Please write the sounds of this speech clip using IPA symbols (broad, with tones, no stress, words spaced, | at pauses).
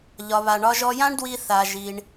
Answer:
ʎɒ˩βa˩ɳɒ˧ʒ ɔ˧jã˥ɳdwi˧ θa˩ʒi˩ɳ